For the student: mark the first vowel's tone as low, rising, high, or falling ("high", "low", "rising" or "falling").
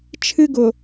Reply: high